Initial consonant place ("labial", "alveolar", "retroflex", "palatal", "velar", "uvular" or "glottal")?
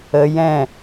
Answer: palatal